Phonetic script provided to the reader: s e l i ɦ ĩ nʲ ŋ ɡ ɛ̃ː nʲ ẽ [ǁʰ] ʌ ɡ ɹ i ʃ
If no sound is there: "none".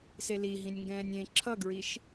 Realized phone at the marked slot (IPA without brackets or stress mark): ǁʰ